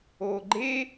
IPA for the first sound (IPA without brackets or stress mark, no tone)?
oː